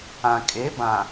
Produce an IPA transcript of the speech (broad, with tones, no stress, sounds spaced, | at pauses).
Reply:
ã˨ kʼ e˨˦ b ã˨